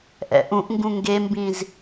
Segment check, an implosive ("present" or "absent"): absent